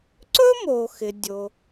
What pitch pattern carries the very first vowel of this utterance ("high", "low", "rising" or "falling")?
high